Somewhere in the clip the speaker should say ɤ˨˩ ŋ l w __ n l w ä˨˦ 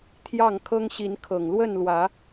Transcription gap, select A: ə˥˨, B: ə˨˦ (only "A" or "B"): A